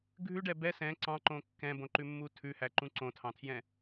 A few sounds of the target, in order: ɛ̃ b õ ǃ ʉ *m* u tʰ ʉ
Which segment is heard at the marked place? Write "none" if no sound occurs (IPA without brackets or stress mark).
mː